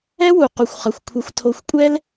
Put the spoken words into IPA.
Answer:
ɛ˦ w u˨ q u˨ xʷ χ ʌ˨ xʷ kʷʰ ʌ˧ xʷ tʰ o˧ xʷ kʷʼ ɛ˦ l

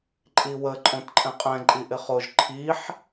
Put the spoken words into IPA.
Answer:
ǃʼ i w ə ǃʼ õ t ǃʼ ɛ̃ qʼ ɛ̃ ǃʼ i ʔ ɪ χ o ʒ ǃʰ i ħ

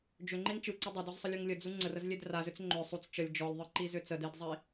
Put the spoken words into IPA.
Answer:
d͡ʒ ʏ ŋ͡ǃ e ŋ t͡ʃ ɯ ǀ ɪ dˤ ɪ d ɔ z sˤ ə lʲ u ŋ lʲ ə d͡z u ŋ͡ǀ ə r ə z lʲ e d r a z ʏ t͡s ŋ͡ǃ ʏ sˤ u t͡s t͡ʃ ə lʲ d͡ʒ ɔ lʲ ðˤ ɯ ǃ i z ʏ t͡s ə d e d zˤ i

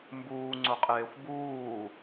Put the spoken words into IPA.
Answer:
m b uː ŋ͡ǀ ʊ qʼ eː xʷ b uː

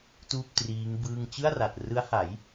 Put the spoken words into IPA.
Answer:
t uː˥˩ p̚ t r iː˦˥ ŋ b ɯː˥˩ ŋ t͡ɕ ɯ˥˩ a̯ r a˨˩ t̚ r ɯ˦˥ a̯ h a˩˦ j

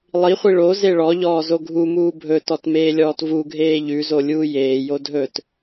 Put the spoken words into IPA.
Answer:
lˠ i χʷ i ɭ o z e ɭ ɔ ʎ ɔː z o ɡʱ u m uː bʱ ɵ t ɔ t m eː lʲ ɔː t v u ɡʱ eː ʎ ʉ z o lʲ uː j eː j o dʱ ɵ t

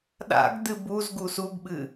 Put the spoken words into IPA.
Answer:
ɗ a̰ ɡ d ɨ b u z ɡ u s u ɡ ɓ ɨ

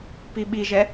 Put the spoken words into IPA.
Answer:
p i ɓ i ʒ ɛ

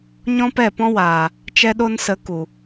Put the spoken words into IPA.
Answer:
ɲ ɔ̃˦ p ɛ˦˨ p ɔ̃˦ w aː˨ | t͡ʃ ɛ˦ ɗ o˦ n s ə˨˦ k u˨

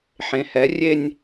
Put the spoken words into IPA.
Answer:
ħ ẽ˨˦ h ɛ˨˦ rʲ e˥˧ nʲ

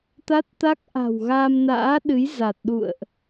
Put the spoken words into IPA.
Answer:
t̪ a˦˥ t̚ t̪ a˦˥ k̚ ʔ a̤˨˩ w ɣ aː˧ m n a̰ː˧˥ ɗ ɨ˨˦ j z a˨˩ t̚ ɗ ṵ˧˨ ə̯ ʔ

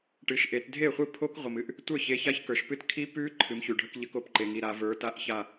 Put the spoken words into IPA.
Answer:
ʈ ɨ˩˧˩ ʃ ʔ e˩˧ t dʱ e˥˩ χʷ ɨ˥˩ pʰ o˦˥ k ʁʷ ə˩ m ɨ˦˥ ʔ | tʷ ə˞˥˩ ç e˩˧˩ ç a˦˥ ç k ə˞˩ ʃ p ɨ˥˩ t kʰ i˦˥ p ʉ˦˥ ǃʰ ɨ˩˧ m ç ʉ˩ ɖʱ ə˦˥ k ʎ ə˦˥ k o˦˥ p ǃ e˩ ŋ i˩˧˩ ɾ a˩˧ v ə˞˩˧ t a˥˩ ʔ ç a˥˩

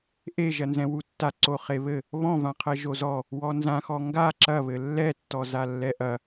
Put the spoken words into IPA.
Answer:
ʔ e ʒ ɐ n z ɛ̃ w u tː a ǀ o χ e β ɘ | β ɔ̃ v ã qʰ ɛ ʒ o z ɔ | w ɔ n z ã x ɔ ŋ ɡ a ǁ ɐ β ɘ lː ɛ tː ɔ z a lː ɛ ʔ ɐ

